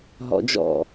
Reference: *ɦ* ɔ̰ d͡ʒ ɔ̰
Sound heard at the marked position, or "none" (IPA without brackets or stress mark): ɦ